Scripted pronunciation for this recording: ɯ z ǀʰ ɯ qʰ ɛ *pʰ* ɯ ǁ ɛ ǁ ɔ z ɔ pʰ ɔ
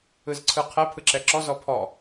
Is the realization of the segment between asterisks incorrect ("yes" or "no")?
no